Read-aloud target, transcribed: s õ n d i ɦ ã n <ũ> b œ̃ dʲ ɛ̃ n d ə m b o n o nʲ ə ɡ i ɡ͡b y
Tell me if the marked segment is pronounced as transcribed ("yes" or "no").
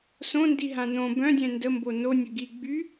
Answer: no